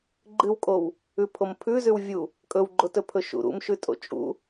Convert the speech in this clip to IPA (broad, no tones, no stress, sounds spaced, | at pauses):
ɡ͡ǃ ɨ w kʼ o w | ʉ pʰ o m pʰ ʉ z ʉ w vʲ u | kʼ ɵ w ɡ͡ǃ o t ɵ pʰ ɵ ʃ ṵ ɾ ṵ m ʃ ʉ tʼ o̰ t͡ʃʼ ṵ